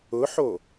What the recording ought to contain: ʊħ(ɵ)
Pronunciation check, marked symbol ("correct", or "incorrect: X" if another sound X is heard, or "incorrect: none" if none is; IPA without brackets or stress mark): incorrect: o